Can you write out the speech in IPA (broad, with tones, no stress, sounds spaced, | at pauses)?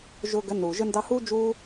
ʒ ʊː˧ ɡ ə˨˦ n uː˨ ʒ ə˧ n d ɑ˧ h uː˦ d͡ʒ uː˦